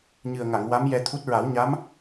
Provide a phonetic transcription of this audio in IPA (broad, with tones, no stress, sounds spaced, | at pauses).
ɲ ɨ˨˩ ə̯ ŋ a˨˩˨ ŋ w a˧˥ m j ɛ˧ t̪ʰ u˦˥ t̚ ɹ a˨˩˦ w ɲ a˧˥ m